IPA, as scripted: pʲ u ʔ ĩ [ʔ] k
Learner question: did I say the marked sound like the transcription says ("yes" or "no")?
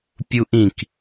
no